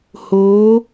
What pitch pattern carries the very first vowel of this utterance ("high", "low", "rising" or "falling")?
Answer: rising